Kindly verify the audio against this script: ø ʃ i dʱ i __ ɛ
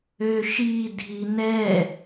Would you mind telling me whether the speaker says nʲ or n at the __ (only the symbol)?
n